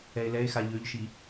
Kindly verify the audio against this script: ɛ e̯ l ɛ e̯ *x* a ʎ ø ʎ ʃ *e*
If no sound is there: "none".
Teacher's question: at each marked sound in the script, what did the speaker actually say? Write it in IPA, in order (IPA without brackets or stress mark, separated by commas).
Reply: x, i